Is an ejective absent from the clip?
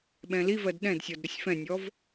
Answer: yes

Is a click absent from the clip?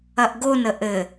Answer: yes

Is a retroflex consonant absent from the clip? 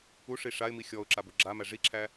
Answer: no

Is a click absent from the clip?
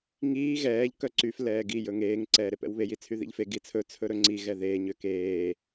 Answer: no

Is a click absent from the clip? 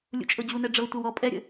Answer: yes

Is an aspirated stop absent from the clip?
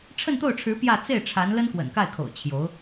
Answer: no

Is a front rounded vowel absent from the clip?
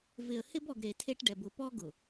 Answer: yes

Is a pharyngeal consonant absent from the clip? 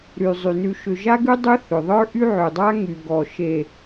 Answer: no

